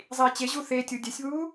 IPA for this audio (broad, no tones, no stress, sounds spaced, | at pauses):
zˤ iː t͡ɕ e ʑ u θ e tʲ u dʲ ɛ sʲ β uː